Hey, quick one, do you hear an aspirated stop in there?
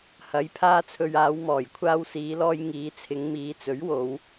yes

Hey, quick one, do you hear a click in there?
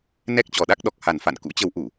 no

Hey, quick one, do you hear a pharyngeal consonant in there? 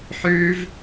yes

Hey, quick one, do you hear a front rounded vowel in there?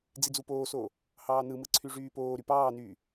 yes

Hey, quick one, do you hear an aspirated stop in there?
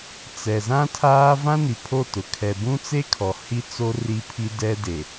yes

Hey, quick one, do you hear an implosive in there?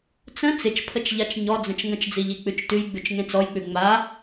no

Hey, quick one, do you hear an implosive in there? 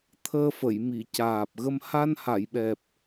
yes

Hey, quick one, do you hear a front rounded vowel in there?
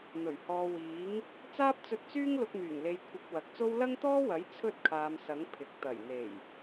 yes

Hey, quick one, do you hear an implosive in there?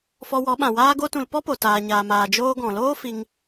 yes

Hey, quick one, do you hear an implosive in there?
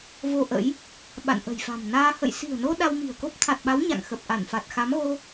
yes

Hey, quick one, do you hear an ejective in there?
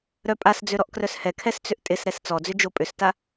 yes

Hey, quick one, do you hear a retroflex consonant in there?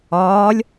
no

